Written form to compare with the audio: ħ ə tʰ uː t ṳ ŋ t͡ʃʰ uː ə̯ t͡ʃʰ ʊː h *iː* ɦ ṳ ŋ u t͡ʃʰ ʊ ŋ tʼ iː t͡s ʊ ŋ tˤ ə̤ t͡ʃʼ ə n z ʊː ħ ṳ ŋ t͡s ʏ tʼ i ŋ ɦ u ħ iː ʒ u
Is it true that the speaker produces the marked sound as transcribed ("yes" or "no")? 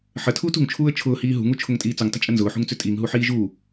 yes